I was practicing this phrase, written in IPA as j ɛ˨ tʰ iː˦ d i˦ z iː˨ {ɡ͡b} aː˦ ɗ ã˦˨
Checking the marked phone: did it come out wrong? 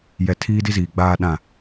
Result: no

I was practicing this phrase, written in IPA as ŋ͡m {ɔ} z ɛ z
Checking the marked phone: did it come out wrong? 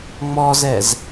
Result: no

